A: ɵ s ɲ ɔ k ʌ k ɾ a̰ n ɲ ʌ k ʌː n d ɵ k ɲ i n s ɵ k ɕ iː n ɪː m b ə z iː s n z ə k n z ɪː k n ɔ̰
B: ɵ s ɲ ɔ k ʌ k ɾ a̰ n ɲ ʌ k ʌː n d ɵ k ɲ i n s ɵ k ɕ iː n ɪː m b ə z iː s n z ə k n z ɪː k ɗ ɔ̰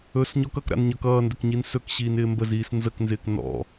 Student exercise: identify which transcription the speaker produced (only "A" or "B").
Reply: A